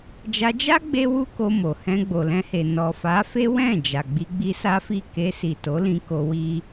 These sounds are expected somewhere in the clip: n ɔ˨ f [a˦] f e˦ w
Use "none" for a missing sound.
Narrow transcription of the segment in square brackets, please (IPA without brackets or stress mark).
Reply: a˨˦